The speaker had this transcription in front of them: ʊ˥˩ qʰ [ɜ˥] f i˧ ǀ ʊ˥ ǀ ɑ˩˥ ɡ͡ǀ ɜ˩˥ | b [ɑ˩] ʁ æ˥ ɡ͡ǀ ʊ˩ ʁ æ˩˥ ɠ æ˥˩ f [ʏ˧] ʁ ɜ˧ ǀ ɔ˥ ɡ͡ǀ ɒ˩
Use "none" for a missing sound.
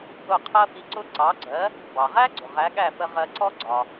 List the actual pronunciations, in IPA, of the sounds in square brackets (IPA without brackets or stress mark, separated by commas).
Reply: ɜ˥, ɑ˩, ə˧